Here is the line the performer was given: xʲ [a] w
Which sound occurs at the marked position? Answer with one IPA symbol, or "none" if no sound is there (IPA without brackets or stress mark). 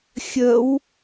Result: ə